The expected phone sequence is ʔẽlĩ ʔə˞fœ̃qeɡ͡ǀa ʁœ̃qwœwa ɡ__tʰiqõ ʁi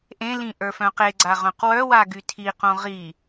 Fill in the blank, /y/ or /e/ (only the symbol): y